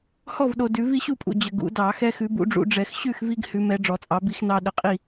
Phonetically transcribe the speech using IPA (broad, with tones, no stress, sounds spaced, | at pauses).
h ɔ˥˨ v ɗ o˨ d ʉ˨˩˦ v i˦ ɕ u˥˨ pʼ ṵ˨ d͡ʑ ə˨ ɡ ṵ˨˩˦ d ɑ˨˩˦ x ɛ˦ x ʉ˨˦ b ṵ˨˦ ɖ͡ʐ ṵ˨˦ ɖ͡ʐ ɛ˨˩˦ x ɕ ʉ˥˨ x v i˦ ɡ h ʉ˨˦ m ɛ˨˦ ɖ͡ʐ ɔ˨˩˦ t͡sʼ ɑ˨˦ b i˦ x n ɑ˦ ɗ ə˨˦ qʼ i˥˨